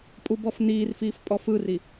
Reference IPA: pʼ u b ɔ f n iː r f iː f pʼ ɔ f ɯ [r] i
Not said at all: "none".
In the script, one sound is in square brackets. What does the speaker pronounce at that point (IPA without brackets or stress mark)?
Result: r